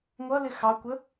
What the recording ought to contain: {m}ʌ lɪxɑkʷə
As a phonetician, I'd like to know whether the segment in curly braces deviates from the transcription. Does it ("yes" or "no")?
yes